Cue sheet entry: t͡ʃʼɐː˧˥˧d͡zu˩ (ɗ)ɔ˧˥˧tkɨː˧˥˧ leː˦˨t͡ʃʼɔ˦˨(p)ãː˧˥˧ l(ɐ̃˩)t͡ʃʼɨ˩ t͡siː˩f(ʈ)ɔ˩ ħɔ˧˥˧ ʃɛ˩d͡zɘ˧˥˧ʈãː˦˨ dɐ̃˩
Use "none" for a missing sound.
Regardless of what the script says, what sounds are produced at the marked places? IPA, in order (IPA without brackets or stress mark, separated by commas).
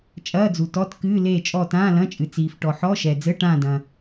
t, t, ɐ̃˧˥˧, ʈ